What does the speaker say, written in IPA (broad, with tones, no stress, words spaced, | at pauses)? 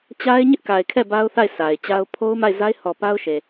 t͡ɕa˦ɪ̯ ɲɪ˦ʔka˨ɪ̯kʰɛ˦˨ ba˦ʊ̯θa˦˨ɪ̯ sʰa˨ɪ̯t͡ɕa˦ʊ̯ pʰo˦ʊ̯ma˦˨ɪ̯za˦ɪ̯ hɔ˨ pa˦ʊ̯ʃe˨